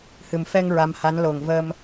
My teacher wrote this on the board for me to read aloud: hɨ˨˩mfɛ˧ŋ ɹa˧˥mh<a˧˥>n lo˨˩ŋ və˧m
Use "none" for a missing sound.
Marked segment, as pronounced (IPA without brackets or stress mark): a˧˥